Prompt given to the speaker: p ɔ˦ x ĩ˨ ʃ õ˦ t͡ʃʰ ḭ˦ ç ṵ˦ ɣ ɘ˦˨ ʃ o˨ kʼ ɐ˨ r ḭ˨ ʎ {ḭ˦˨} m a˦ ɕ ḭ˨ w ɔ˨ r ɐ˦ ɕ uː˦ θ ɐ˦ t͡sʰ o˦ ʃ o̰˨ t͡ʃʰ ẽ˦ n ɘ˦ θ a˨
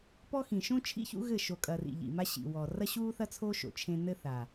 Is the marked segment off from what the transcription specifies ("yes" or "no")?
yes